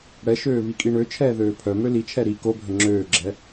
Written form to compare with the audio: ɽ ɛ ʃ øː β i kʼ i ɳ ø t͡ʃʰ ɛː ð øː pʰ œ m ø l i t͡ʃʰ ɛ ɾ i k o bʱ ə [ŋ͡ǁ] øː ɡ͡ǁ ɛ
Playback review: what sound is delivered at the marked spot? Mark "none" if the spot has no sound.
ŋ͡ǁ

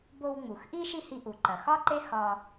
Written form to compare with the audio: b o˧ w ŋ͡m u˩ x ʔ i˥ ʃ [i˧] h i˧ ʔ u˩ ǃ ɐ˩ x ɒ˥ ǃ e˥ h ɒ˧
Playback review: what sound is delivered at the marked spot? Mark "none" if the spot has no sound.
i˥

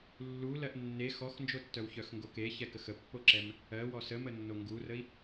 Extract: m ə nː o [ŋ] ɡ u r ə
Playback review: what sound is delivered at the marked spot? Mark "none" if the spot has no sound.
ŋ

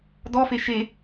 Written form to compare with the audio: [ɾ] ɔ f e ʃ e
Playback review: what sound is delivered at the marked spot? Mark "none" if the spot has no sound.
d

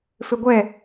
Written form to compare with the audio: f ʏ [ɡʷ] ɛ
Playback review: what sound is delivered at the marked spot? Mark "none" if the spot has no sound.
ɡʷ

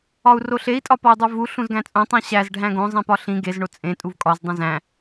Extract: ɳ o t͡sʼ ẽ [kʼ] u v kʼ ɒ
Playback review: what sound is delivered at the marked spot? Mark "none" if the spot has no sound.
tʼ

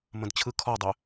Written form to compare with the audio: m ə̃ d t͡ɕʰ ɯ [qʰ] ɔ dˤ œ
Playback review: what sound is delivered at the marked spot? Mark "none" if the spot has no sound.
kʰ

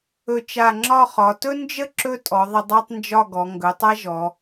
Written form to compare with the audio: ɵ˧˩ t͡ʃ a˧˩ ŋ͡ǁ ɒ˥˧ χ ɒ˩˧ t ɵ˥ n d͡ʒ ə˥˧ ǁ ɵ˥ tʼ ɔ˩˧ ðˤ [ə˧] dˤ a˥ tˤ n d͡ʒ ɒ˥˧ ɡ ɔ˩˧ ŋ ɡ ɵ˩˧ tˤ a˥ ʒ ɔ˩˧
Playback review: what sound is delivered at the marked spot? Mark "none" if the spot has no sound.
ə˧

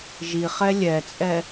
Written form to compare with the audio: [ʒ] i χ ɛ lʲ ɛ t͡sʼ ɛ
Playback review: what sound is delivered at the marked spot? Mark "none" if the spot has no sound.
ʒ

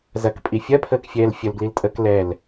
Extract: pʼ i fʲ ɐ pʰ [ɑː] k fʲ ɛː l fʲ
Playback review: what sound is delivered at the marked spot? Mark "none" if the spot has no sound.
əː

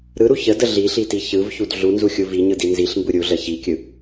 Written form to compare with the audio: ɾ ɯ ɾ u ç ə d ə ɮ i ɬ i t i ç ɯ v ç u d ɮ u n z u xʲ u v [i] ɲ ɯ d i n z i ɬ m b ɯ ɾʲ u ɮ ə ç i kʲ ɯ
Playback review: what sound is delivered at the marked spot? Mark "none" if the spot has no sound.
i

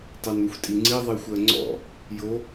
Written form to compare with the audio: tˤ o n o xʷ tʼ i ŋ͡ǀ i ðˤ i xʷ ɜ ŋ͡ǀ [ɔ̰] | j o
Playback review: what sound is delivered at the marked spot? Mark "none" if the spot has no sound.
ɔ̰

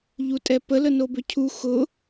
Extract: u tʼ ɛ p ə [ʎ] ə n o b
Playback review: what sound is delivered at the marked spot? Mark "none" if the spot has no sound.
l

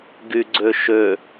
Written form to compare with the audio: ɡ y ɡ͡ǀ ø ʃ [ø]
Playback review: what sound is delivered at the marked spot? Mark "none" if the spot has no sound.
ø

